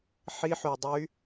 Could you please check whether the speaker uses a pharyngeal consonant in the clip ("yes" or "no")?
yes